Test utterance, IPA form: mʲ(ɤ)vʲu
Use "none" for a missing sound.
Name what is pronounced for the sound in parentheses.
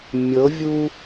ɤ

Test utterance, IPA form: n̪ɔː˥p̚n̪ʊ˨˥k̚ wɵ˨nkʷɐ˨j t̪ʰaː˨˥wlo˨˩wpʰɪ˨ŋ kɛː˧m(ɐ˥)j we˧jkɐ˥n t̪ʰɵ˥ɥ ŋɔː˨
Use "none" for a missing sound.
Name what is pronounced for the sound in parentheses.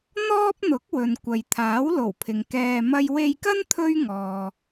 ɐ˥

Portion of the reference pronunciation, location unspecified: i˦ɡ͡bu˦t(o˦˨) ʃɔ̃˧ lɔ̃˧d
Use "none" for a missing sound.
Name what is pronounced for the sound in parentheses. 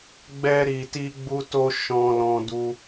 o˦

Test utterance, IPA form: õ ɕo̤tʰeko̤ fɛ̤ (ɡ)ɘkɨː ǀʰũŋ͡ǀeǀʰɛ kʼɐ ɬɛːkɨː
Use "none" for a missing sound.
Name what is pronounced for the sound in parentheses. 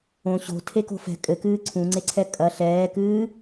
kʼ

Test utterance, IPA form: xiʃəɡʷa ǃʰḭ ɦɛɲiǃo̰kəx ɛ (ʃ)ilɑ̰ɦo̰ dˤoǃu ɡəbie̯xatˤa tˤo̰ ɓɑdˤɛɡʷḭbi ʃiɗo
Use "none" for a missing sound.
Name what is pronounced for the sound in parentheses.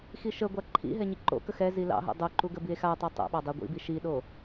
z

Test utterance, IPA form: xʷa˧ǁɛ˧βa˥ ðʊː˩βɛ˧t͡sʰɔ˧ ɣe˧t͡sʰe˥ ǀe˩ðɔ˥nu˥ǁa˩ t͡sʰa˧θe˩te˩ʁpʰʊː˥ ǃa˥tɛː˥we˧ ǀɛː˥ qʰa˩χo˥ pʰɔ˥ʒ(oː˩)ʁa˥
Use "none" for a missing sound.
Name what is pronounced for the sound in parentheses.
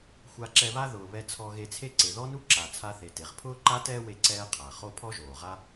oː˩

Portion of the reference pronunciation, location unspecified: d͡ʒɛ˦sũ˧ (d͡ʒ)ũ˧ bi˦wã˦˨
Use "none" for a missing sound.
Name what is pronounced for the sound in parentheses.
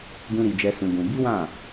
ɡ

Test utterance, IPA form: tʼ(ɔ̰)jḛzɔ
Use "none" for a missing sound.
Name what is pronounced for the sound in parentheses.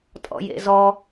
ɔ̰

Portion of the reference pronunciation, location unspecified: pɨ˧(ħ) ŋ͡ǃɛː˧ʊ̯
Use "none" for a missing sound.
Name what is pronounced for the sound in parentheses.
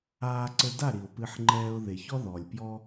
ħ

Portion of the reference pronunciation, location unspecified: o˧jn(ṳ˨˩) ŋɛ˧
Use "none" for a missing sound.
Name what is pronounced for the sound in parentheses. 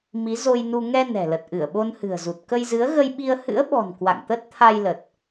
u˧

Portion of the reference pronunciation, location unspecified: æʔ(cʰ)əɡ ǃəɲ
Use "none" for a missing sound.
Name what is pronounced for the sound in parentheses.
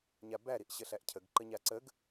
cʰ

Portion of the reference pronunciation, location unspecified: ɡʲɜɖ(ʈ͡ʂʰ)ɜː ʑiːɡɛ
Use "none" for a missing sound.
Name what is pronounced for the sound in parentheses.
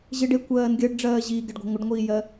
ɖ͡ʐ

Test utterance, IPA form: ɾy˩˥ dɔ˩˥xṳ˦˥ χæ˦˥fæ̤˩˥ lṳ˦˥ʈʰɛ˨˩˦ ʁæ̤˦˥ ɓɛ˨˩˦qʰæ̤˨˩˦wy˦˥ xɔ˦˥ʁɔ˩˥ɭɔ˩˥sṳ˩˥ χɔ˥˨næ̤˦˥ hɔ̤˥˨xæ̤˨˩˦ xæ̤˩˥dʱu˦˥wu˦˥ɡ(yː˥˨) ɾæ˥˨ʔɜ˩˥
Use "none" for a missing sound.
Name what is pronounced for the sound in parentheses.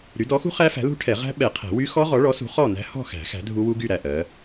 y˥˨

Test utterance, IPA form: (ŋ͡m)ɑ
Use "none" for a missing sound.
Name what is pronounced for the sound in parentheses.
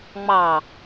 ŋ͡m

